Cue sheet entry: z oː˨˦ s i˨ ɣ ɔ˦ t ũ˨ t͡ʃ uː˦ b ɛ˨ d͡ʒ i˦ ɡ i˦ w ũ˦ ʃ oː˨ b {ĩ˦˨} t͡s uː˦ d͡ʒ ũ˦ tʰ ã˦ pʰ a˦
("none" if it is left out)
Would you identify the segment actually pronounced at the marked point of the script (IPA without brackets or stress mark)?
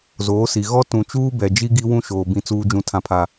ĩ˦